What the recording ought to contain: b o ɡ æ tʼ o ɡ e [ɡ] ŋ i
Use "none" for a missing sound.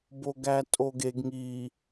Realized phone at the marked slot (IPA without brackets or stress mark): ɡ